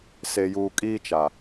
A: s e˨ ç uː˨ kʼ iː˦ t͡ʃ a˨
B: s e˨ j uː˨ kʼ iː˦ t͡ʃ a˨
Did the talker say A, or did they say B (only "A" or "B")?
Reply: B